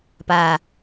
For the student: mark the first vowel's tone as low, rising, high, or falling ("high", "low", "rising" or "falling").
low